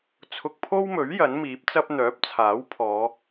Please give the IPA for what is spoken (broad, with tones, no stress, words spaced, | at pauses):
t͡sʰʊ˧k̚pʰo˥wmɵ˨˥ɥ jɐ˨˥nmiː˨˥p̚t͡sɐ˥p̚ n̪œː˨˥p̚t͡sʰaː˨˥wpʰɔː˨˧